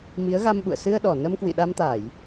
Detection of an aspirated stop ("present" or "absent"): absent